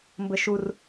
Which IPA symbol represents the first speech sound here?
m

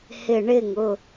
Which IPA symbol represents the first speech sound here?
h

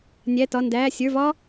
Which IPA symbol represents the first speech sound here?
nʲ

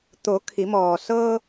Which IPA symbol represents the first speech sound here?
t̪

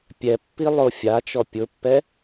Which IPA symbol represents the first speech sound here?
pʲ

